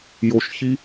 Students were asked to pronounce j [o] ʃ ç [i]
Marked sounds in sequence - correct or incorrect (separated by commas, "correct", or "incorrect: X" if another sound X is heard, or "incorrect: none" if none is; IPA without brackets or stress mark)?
correct, correct